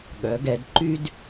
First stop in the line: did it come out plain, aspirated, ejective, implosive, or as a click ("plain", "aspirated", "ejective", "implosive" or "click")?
implosive